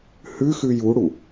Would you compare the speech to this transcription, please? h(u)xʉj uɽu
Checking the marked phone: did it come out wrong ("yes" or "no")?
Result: yes